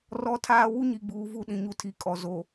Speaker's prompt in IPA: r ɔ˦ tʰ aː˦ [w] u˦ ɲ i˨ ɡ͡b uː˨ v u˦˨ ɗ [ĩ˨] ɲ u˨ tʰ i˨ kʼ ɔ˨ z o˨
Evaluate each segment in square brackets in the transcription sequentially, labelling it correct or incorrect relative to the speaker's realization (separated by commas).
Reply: correct, correct